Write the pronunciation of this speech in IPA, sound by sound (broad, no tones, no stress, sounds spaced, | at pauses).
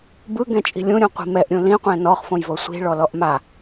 b ɯ ɡ ɛ̃ t͡ʃʼ i̤ lʲ ũ ɾʲ ũ qʷ i̤ m ɛ ʔ ɾʲ ũ l ĩ qʷ ɛ̃ n ɔ χ f õ j v ɤ sʷ i̤ ɭ ɔ l ɔ ʔ m a